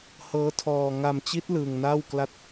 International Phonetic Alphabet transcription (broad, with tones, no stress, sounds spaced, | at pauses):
h ɤː˦˥ tʰ ɔː˧ ŋ a˧ m t͡ɕ i˦˥ t̚ l ɯː˧ ŋ n aː˥˩ w k l a˥˩ t̚